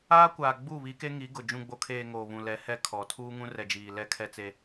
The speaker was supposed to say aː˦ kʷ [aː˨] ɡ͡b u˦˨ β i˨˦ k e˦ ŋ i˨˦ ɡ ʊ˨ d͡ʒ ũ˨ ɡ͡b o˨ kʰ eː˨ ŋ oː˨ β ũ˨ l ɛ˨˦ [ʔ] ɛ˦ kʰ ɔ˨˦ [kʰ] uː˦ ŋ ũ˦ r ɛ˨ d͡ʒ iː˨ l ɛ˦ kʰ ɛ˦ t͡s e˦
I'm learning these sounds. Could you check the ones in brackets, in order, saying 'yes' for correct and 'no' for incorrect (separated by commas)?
yes, no, no